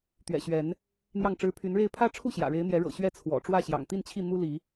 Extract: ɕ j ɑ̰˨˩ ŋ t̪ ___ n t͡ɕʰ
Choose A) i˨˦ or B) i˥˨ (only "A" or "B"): B